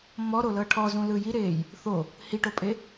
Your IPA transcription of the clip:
m ɔ ɾ o l ɤ ʈʰ ɔ z ũ l ɯ j i ɾ eː j | θ o | h i ʈ o pʼ e

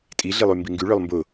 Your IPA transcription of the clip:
tʼ i ɮ i lˠ y m b i ŋ ɡ y ɭ œ lˠ m b ʊ

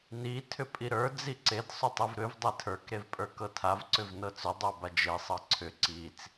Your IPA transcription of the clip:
n i tʰ ʏ pʼ i ɾ ə˞ d͡z i ǀ e d sˤ ʏ tˤ i v ɾ ʏ v dˤ e tʰ ə˞ k ɾ e v pʼ ə˞ k ɤ tʰ a v ǀ ʏ v n ɤ t͡s ʏ dˤ ə˞ b a d͡ʒ e sˤ ɤ ǀʰ ʏ ǀ i t͡s

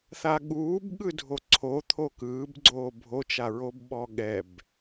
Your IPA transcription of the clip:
θ a ɠ uː b ɠ ɯ dʱ o ǀʰ o t̪ʰ o k ɯː b ɡ͡ǀ oː bʱ o t͡ʃ a ɹ o b ɓ ɔ ɠ ɛ b

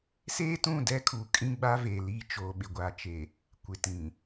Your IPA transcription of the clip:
s eː˦ t ũ˦˨ d ɛ˦ kʰ u˨ kʼ ĩ˦ ɡ͡b a˦ v e˨ l iː˦˨ t͡ʃ oː˨ ɓ ɪ˨ ɡʷ a˨ t͡ʃ e˨ | kʷ ɪ˨ t ĩ˨

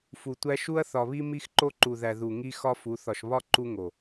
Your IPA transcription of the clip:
f u˨ tʷ æ˦ ʃ u˦ ɐ̯ θ ɒ˨ β i˦ m i˦ x ǃ o˦ ǃ u˨ ð æ˨ ð u˨ ŋ i˦ x ɒ˦ f u˨˦ θ ɒ˨ ʃ β ɒ˦ ǃ u˦ ŋ o˨

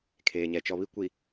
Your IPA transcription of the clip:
kʰ eː˨ ɲ ɛ˨ t͡ʃ ɔ˨ β i˦ kʷ i˨

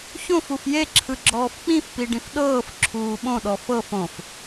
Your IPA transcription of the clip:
ç õ f u f j e ǁʰ ɯ ɡ͡ǁ ɔː f k͡p ĩ f p i ɖ ĩ f ɗ ɤː f ǁʰ uː ɓ õ ɗ ɔ f ɤ f õ f

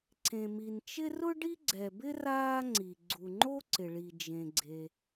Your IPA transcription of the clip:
ǀ ẽ˩ m i˩ n t͡ʃ ɪ˥ r ʊ˥ ɖ i˥ ɡ͡ǀ ɛ˩ b ɪ˥ r aː˥ ŋ͡ǀ i˩ ɡ͡ǀ u˩ ŋ͡ǃ o˥ ǀ ɪ˩ ɭ i˩ d͡ʒ ẽ˩ ɡ͡ǀ e˩

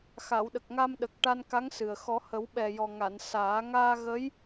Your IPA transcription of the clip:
x a˨˩˨ w ɗ ə˨˩ k̚ ŋ a˧ m ɗ ə˨˩ k̚ ʈ a˧ n k a˧˥ ŋ s ɨ˨˩ ə̯ x ɔ˨˩˦ h ə˨˩˦ w ɓ ɛ˨˩ j ɔ˨˩ ŋ a˨˩˨ n s aː˨˩˦ ŋ aː˧ ɣ ə˧˥ j

